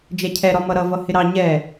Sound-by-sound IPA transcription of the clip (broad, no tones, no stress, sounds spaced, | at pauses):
d͡ʒ ɛ cʰ ɛ ɾ ɒ m ʌ ɾ ʌ v ʌ h ɪ ɾ ɑ ɲ ɛ